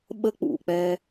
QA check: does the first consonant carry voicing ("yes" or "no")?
yes